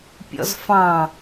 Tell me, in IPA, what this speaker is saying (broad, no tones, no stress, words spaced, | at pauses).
pʲɔ̰zfɑ̃